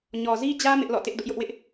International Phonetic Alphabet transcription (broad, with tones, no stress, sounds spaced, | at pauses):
ɲ ɔ˨ z i˦ d͡ʑ ä˦ m ɪ˦ ʔ l ɔ̰˦˨ t ɪ˦ ʔ d ʊ˦ ʔ j ʊ˦ ʔ w ɪ˦ ʔ